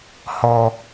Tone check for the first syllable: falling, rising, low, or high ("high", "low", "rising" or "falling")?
high